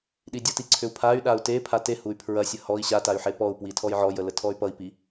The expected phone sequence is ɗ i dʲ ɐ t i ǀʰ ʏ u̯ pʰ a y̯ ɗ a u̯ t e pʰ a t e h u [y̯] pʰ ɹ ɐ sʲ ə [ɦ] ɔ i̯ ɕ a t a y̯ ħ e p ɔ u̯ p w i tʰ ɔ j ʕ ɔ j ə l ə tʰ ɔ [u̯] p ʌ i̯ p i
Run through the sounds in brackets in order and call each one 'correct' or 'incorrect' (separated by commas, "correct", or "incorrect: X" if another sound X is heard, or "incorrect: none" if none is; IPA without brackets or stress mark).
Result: correct, incorrect: h, incorrect: y̯